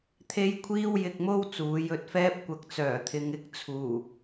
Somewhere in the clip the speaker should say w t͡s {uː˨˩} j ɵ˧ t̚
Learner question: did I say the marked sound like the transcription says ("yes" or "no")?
no